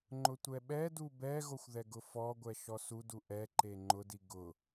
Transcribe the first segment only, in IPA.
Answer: ŋ͡ǃ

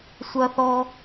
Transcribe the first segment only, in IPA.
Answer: sʷ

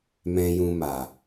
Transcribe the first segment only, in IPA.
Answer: m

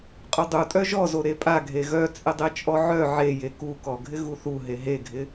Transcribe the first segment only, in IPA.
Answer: qʼ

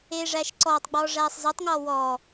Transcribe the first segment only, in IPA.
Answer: eː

